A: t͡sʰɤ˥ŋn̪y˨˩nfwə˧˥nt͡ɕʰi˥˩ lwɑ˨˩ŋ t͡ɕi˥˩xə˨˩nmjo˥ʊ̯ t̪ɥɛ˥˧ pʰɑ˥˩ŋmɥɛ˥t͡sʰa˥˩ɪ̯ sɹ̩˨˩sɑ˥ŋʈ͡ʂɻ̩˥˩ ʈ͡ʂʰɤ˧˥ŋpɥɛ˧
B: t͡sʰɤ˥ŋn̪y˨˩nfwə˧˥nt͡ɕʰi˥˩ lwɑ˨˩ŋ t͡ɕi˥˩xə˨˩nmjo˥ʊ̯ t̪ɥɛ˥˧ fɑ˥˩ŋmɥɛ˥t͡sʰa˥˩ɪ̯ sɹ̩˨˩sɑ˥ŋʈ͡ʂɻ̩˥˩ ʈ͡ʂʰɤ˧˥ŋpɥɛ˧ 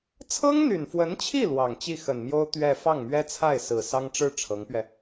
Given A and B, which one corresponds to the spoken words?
B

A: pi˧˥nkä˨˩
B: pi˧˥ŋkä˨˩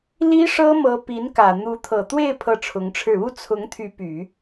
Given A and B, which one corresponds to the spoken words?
A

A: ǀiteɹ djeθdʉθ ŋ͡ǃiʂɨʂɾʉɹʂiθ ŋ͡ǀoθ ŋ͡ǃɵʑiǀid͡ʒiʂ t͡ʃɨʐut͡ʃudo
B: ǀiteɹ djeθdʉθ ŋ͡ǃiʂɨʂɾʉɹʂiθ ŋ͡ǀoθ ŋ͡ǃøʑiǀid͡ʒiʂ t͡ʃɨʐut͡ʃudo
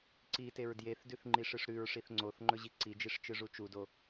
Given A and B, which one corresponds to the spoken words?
A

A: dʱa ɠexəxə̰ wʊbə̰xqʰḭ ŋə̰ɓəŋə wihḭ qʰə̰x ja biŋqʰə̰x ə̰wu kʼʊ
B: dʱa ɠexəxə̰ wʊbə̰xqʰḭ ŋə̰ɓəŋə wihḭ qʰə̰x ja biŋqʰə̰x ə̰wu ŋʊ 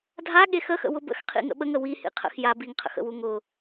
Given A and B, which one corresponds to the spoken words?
B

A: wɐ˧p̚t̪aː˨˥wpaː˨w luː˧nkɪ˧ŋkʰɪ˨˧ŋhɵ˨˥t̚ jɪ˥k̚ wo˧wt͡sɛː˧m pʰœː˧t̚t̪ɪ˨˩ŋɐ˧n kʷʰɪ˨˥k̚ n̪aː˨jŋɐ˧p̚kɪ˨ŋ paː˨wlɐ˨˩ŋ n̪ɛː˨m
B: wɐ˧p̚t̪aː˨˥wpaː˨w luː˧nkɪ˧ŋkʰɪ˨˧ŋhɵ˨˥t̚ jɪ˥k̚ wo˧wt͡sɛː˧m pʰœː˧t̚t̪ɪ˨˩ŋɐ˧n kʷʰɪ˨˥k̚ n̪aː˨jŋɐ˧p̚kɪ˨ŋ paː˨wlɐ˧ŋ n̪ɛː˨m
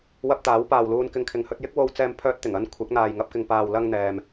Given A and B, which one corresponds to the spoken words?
B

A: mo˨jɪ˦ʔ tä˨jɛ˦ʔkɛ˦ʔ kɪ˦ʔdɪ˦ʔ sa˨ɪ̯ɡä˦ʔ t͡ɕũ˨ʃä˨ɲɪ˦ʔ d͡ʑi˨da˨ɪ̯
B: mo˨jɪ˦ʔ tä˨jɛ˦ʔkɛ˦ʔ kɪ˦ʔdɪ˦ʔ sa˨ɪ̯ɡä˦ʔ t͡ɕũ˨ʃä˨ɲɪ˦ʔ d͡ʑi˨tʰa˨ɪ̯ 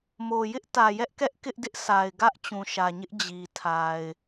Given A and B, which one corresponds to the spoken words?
B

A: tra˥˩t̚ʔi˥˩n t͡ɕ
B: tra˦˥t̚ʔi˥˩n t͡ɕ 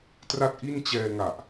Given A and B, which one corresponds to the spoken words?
A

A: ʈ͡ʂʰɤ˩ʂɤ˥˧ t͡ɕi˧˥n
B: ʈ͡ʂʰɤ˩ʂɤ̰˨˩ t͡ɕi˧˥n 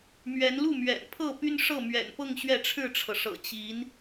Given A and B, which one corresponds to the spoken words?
B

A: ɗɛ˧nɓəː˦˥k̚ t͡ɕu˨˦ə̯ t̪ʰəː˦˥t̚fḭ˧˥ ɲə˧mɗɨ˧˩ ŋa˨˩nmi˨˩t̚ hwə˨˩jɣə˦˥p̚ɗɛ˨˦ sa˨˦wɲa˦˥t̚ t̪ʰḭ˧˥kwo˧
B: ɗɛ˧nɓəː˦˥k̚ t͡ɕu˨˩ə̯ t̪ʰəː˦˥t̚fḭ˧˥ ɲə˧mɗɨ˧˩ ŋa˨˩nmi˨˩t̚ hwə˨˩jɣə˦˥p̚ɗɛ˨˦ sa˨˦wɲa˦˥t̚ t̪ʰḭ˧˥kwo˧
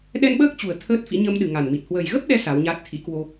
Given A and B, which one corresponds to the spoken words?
B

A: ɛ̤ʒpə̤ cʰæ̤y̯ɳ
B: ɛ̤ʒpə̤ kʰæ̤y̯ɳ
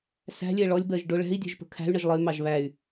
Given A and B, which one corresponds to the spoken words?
B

